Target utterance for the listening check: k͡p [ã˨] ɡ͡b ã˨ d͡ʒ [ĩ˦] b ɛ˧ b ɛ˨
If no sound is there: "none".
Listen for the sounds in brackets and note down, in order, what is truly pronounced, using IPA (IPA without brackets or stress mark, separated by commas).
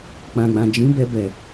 ã˨, ĩ˨˦